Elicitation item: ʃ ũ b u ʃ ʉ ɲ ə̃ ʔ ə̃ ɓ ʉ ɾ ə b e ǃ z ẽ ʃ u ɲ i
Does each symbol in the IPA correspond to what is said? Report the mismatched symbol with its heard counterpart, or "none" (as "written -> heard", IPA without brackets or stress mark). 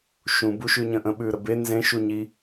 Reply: ǃ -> n